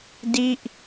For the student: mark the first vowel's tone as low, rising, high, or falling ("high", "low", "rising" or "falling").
falling